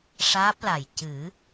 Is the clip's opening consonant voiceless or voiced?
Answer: voiceless